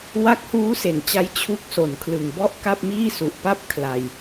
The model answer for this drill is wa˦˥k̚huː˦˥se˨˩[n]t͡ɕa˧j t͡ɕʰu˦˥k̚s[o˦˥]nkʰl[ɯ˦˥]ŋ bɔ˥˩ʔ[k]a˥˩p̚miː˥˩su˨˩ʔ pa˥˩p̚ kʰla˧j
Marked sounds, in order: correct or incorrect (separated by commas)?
correct, incorrect, incorrect, correct